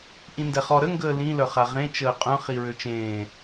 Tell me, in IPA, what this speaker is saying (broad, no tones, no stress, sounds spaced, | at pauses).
ʔ ĩ n d ɛ χ ɔ ɾ ə ŋ ɡ əː l ĩ l œ χ a ʁ ẽ t͡ʃ əː qʼ œ̃ χ i ɹ ø t͡ʃ ẽː